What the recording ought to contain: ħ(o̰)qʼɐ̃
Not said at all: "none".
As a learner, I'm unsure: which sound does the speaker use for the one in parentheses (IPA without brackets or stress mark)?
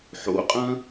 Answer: o̰